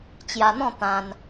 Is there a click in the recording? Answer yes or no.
no